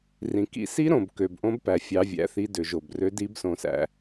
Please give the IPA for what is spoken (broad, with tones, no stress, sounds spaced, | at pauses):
r ĩ˨ k ḭ˦ s i˦ ɾ õ˨ b k ø˨ b ʔ õ˦ b p æ˨ fʲ ɑ˦ vʲ æ̰˦ θ i˦ d ø˨ ʒ o˨ b r ø˦ d i˦ b s õ˨ s æ̰˨